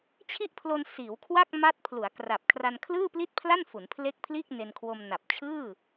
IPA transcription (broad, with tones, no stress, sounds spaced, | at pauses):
t͡ɕʰ i˦˥ ʔ pʰ l o˧ n s iː˩˦ w kʰ w a˥˩ k̚ m a˦˥ t̚ pʰ l u˩˦ a̯ k r a˨˩ p̚ kʰ r a˧ n kʰ l ɯː˥˩ p l i˥˩ t̚ pʰ l a˥˩ n f u˩˦ n pʰ l e˦˥ k̚ pʰ l iː˥˩ k̚ n e˧ n kʰ w o˧ m n a˨˩ p̚ t͡ɕʰ ɯː˥˩